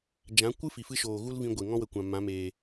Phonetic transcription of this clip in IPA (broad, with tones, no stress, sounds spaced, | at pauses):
d͡ʒ ã˨˦ kʷ ɨ˦ f i˨ f ɨ˦ ʃ oː˨ ɣ u˦ l v ĩ˧ ɡʷ e˨ ŋ ɔ̃˦ w ə˨ kʷ ã˨ m ã˨˦ m eː˨